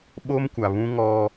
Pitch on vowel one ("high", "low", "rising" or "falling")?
high